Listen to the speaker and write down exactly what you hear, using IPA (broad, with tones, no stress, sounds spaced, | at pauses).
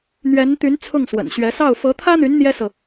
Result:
n̪ ɥ ɛ˧˥ n t̪ y˧˥ n t͡sʰ ʊ˥˩ ŋ s w ə̰˨˩ n ɕ ɥ ɛ˧˥ s ɑ˥˩ ʊ̯ f ɤ˧˥ t̪ʰ ä˥ n̪ y˧˥ n n̪ j ɛ˥ s ɤ˨